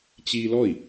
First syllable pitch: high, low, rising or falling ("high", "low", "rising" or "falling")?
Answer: high